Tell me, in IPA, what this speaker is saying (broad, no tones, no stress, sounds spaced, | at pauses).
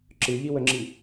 ǁ ɨ ʎ i w ə ŋ͡ǁ i